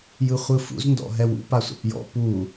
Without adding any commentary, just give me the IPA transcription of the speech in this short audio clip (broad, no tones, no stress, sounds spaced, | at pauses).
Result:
j ɯ χʷ ɯ f ṵ z n d ɔ̰ ɦ ɛ w ṵ p a sʷ a̰ p j ɔ̰ p u